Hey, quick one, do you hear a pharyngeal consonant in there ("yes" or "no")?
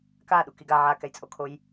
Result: yes